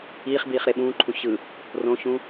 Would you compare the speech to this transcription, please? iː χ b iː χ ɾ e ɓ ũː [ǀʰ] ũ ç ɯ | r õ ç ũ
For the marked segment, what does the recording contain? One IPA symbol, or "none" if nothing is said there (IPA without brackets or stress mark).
ǃʰ